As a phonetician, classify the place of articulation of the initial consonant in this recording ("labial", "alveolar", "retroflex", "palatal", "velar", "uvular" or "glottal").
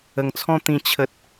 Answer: velar